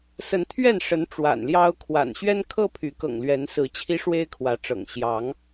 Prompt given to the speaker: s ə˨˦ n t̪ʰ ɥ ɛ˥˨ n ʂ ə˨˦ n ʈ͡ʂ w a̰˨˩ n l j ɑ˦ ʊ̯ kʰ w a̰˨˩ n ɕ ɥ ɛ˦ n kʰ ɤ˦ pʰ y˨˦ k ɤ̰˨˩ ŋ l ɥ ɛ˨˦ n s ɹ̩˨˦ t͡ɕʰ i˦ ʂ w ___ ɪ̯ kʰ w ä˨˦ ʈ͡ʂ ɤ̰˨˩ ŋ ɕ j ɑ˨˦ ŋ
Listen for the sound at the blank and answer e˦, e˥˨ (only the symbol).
e˦